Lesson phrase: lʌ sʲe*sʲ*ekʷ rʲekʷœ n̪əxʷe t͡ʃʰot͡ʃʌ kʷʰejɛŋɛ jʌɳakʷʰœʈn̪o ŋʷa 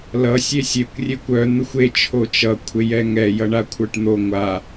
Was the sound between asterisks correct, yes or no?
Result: yes